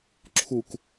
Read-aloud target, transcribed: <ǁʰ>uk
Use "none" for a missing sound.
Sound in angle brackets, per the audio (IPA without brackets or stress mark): ǁʰ